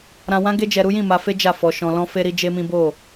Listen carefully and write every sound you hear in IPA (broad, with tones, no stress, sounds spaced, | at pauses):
ɾ ã˧ w ã˦ ɡ e˦ d͡ʒ ɛ˧ ɾ u˦ j ĩ˦˨ m a˧ f e˦ d͡ʒ a˦˨ f ɔ˧ ʃ ɔ̃˧ l ɔ̃˦ f e˦ ɾ i˦ d͡ʒ e˦ m ĩ˦ b o˦˨